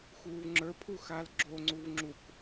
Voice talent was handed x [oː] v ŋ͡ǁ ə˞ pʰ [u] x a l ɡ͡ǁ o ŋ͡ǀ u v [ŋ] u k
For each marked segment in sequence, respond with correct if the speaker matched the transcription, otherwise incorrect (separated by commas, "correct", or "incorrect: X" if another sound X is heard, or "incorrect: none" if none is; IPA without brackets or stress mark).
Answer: incorrect: uː, correct, incorrect: ŋ͡ǁ